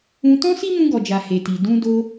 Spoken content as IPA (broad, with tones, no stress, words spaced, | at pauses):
ũ˧ tɔ̃˦si˦mũ˧ ɡɔ˨d͡ʒa˨ he˨ti˨ dũ˧ do˧